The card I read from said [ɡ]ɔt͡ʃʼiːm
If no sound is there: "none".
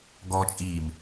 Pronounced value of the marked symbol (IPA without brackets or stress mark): ɡ